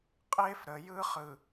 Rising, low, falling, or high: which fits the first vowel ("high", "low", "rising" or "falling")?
high